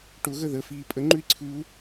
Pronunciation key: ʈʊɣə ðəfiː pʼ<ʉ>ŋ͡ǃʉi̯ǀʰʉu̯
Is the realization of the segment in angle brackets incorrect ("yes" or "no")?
yes